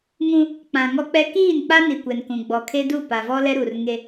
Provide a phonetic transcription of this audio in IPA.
ŋ ũ˦ | k͡p ã˨ ŋ ɔ˦ k͡p ɛ˦ k iː˦˨ n k͡p a˦ n i˨ kʷ ɛ˨ n k ũ˨ ɡ͡b ɔ˨ kʰ e˦ d u˦˨ p a˨ v ɔ˦ l ɛ˦ ɾ u˨ r ŋ e˦

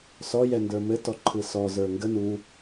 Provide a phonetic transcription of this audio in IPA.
s ɔ j ɛ n d ə˞ m ɘ t ɔ ǃʰ ɯ s ɔ z ə˞ ŋ ɡ ə n u

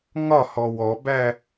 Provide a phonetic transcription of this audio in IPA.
ŋ ɒ h ɔ w ɔ b æ

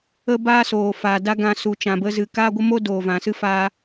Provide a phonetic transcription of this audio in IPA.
ə˦ b aː˦ s oː˨ f aː˨ d a˦ ɡ ã˧ s u˨ t͡ʃ ã˨ b ə˧ z ɨ˨ k aː˦ ɡʷ ə˦ m o˦ d oː˨ v ã˨ s ɨ˦ f a˧

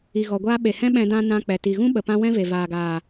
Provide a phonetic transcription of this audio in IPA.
i˨ ɣ ɔ˨ ɡʷ aː˦ ɓ e˨ h ɛ̃˦ ɓ ɛ̃˧ d ã˦ n ã˧ k͡p ɛ˨ t i˨ ɣ ũ˦ ɓ ə˨ p ã˧ w ɛ̃˦ v e˨ v aː˨ ɡ aː˨

